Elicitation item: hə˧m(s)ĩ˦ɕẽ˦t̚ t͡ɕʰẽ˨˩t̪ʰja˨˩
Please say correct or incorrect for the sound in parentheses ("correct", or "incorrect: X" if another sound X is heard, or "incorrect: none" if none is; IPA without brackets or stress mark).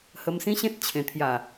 correct